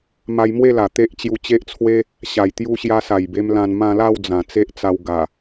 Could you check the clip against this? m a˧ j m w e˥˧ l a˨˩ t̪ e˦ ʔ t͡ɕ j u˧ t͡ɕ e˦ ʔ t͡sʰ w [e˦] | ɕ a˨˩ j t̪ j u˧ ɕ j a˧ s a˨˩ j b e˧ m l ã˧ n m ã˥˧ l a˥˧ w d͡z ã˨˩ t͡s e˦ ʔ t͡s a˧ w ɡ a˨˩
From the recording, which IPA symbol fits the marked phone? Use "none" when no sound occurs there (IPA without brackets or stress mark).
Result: e˦